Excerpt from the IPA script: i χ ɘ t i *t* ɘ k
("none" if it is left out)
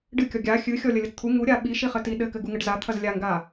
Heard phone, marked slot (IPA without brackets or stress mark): ɗ